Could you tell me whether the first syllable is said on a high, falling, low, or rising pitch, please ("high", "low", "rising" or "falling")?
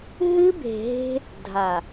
high